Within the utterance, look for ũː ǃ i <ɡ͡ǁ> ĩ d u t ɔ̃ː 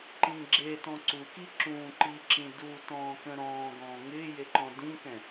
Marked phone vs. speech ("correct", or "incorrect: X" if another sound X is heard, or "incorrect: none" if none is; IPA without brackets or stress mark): incorrect: ǁ